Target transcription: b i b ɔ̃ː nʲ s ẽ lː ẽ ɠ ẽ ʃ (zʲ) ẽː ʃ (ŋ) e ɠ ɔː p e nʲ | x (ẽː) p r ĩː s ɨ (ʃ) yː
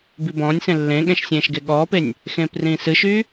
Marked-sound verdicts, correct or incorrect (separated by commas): incorrect, incorrect, correct, correct